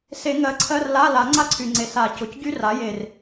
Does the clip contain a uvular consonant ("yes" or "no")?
no